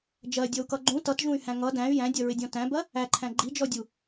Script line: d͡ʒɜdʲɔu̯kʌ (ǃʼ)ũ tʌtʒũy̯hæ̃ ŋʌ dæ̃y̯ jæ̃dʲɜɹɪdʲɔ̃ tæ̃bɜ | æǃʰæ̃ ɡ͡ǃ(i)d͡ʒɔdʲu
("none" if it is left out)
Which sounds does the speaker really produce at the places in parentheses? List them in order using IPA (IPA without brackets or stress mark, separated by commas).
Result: ɡ͡ǃ, i